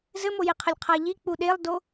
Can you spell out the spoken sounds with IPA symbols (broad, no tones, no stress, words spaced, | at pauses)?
zɘmojeqʰəlʲ qʰaʎi k͡puɗelˠdo